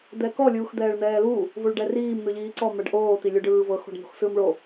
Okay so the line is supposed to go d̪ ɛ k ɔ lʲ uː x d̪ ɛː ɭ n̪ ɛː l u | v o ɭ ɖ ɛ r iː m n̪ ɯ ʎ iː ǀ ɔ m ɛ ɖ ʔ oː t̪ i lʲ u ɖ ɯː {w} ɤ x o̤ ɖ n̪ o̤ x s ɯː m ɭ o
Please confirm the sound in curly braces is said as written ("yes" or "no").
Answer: no